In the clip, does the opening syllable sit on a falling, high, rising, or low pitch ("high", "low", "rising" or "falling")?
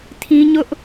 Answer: high